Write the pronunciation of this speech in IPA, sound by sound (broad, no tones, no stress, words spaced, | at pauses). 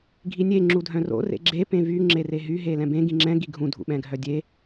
ɡʱinʲe ŋ͡ǁudʱœ̃ro̰ rḛɡ͡ǁe pẽvy ŋ͡ǁereɦy ɦelɛ̃bẽ ɡĩŋ͡ǁɛ̃ ɡiɡʱũ dʱṵɓɛ̃ɡʱœdʲe